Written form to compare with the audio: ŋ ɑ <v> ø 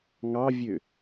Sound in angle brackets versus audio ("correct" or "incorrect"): incorrect